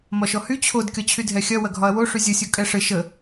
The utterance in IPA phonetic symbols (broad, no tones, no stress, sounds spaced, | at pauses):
m ɒ ʃ ɔ h y t͡ɕʰ o d kʲ ɒ t͡ɕʰ y dʱ ɛ xʲ ɐ w ɐ ɡʱ ɒ ɐ̯ w o ʂ y zʲ ə sʲ o kʼ ɛ ʂ ɘ ʃ ə